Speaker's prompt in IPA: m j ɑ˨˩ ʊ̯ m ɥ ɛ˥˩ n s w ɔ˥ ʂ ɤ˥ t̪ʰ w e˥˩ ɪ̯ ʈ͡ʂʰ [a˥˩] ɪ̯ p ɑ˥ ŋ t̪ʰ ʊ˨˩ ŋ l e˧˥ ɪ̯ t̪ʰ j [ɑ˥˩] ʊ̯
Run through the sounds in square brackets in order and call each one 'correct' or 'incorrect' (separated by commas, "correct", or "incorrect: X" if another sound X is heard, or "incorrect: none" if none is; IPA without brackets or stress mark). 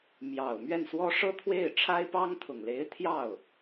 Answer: incorrect: a˥, correct